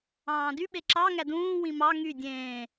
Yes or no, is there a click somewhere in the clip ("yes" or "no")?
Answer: yes